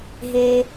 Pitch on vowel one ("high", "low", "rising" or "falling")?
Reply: low